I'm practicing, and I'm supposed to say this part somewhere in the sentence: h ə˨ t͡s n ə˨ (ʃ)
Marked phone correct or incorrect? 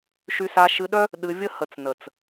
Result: incorrect: t͡s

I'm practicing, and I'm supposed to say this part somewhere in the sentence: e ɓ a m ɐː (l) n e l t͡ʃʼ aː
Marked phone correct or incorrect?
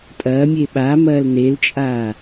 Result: correct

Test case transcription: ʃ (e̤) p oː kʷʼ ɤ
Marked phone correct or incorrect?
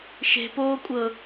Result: correct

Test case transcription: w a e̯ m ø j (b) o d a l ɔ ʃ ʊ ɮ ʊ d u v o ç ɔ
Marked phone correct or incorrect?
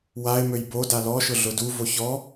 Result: correct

